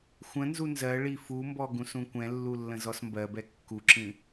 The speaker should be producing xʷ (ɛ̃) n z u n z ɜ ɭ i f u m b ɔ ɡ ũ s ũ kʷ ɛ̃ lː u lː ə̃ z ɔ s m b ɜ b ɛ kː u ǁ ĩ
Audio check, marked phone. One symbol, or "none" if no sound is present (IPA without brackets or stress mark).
ə̃